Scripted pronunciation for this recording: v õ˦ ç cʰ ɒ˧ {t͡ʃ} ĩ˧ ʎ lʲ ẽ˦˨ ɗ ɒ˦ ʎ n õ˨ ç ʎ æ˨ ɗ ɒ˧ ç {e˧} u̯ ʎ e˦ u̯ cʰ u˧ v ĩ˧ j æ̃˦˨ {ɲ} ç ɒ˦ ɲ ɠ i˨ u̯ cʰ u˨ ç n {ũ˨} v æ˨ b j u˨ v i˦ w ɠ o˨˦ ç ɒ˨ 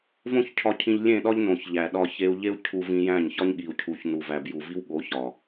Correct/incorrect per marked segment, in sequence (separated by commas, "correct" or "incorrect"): incorrect, correct, correct, incorrect